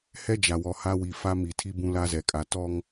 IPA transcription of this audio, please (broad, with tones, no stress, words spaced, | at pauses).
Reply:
hɛ˦d͡ʒa˨wɔ˨ ha˦wi˨ fa˦mi˨tʰi˦ bũ˦la˦ zɛ˨kʼa˨ tɔ˦ŋ